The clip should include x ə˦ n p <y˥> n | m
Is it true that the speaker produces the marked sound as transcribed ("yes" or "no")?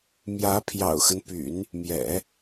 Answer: no